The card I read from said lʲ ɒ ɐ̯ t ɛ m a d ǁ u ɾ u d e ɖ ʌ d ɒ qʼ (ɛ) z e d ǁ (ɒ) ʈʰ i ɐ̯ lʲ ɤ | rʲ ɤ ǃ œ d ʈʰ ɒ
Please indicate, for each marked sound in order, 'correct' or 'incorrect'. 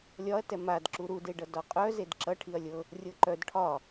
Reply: incorrect: œ, incorrect: ʌ

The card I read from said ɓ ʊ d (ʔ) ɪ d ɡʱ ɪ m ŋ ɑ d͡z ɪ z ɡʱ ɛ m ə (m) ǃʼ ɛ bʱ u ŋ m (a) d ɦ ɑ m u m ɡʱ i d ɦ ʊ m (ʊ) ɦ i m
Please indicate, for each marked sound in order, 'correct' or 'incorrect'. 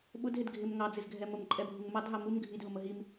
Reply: incorrect: ɦ, correct, incorrect: ɑ, incorrect: ə

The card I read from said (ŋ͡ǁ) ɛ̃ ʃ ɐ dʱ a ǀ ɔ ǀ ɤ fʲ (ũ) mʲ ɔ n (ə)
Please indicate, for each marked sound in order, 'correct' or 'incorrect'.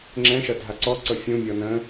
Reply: correct, correct, incorrect: ə̃

